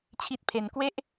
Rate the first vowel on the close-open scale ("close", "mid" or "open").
close